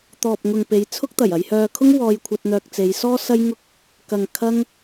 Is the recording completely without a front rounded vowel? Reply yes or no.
no